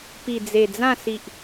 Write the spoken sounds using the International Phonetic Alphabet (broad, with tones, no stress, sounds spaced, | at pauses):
p i˨˩ d͡z e˨˩ d͡z ã˥˧ s i˨ ʔ